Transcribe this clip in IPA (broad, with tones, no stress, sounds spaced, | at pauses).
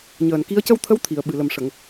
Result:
ɲ əː˨˩ n k i˧˥ ə̯ c ə˧ w t̪ʰ ə˧˥ w t̪ʰ i˨˩˨ ə̯ ɓ ɨ˨˩ l ə˨˩ m ʂ ə˨˩˨ ŋ